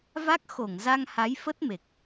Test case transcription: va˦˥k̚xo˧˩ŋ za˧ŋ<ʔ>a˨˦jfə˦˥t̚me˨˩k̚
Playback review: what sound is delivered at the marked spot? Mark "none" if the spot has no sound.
h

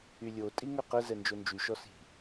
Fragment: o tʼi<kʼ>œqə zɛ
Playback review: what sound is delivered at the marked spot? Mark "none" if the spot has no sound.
ŋ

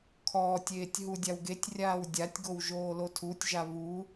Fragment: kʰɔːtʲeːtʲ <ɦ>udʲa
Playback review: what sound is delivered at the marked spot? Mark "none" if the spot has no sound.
ɦ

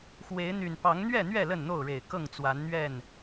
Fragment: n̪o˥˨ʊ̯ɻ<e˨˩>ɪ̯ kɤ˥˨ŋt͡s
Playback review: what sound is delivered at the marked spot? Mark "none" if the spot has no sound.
e˨˩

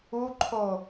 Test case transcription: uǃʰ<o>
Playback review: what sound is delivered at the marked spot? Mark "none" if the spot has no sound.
o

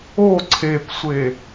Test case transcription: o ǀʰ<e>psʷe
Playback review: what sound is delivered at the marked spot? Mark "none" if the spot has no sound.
e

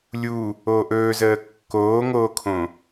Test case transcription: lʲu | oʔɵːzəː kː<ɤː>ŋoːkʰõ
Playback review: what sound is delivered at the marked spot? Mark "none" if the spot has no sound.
oː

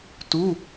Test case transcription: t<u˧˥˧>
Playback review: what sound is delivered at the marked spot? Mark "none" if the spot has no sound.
u˧˥˧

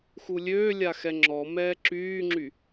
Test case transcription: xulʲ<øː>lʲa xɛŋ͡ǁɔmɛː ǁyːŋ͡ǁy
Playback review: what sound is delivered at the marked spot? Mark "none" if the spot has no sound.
øː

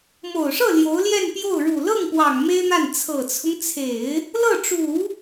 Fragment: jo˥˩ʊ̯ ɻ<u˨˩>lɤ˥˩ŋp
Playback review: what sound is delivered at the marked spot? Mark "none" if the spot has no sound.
u˨˩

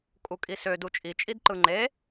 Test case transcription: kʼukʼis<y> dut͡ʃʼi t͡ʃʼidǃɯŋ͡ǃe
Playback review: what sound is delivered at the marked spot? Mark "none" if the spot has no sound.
ø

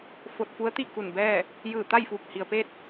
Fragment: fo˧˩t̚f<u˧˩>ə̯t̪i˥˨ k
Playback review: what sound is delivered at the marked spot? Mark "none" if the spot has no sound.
u˧˥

